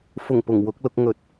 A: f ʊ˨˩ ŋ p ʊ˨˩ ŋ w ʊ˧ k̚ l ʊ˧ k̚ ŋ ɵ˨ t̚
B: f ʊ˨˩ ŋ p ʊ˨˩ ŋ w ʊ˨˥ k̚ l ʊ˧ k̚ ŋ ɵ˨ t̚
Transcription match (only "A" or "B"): B